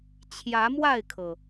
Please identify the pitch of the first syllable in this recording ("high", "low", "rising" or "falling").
rising